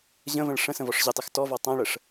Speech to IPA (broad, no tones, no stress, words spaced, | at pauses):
ʑə̃və̃ɭ ʂə̃ sə̃vɔʂʑɪtˤɘx tɔvɔ tˤãɭəʂ